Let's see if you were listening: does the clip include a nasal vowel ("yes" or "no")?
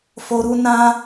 yes